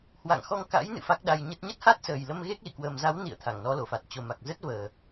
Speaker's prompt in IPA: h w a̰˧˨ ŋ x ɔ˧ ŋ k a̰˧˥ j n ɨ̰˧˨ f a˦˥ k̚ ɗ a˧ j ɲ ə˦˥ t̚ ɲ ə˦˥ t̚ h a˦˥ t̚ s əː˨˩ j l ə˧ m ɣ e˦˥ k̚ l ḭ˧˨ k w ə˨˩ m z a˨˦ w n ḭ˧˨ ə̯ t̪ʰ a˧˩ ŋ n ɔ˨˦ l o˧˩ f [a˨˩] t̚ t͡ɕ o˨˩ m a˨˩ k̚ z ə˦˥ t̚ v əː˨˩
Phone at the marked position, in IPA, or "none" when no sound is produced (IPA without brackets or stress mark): a˨˩